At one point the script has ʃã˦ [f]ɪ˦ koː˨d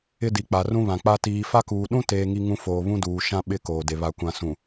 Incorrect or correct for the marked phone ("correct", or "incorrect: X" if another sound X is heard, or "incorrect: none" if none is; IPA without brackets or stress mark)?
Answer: incorrect: ɓ